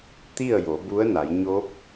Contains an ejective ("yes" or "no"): no